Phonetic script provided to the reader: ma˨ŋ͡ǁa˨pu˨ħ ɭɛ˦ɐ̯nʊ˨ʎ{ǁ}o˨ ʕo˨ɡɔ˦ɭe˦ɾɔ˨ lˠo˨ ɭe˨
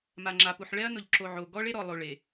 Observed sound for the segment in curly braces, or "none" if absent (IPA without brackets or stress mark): ǁ